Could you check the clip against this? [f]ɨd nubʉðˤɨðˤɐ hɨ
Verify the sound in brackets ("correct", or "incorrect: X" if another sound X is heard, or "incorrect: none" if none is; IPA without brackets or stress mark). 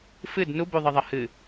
correct